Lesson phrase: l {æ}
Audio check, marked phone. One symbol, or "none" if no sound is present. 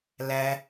æ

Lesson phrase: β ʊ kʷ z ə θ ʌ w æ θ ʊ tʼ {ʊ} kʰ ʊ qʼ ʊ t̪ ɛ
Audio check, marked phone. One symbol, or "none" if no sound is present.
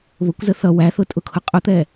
ʊ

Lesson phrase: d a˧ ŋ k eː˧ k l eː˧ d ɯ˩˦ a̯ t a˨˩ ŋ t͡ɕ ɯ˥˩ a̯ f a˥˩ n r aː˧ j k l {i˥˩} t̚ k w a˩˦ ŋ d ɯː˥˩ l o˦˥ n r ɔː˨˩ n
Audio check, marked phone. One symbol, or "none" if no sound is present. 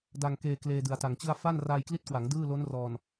i˦˥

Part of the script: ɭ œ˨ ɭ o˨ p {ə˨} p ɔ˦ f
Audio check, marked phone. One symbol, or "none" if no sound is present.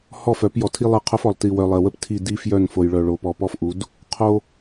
ɔ˨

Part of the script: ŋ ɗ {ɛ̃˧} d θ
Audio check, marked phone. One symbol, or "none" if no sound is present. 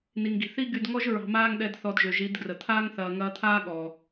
ɛ˧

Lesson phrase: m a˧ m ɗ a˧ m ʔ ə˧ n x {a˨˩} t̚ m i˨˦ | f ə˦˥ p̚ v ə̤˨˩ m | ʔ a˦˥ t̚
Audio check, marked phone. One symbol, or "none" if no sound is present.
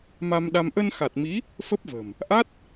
a˨˩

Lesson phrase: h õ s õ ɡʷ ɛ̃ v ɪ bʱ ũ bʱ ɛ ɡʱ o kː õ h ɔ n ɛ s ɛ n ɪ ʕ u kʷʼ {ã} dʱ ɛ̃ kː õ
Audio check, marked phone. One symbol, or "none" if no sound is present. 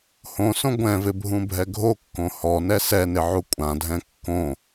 ã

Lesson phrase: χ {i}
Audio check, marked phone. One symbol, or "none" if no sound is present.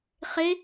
e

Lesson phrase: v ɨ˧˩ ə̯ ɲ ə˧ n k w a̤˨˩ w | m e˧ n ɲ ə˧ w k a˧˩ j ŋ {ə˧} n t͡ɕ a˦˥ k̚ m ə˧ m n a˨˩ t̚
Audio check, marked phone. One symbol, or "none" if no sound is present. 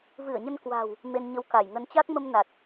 ə˧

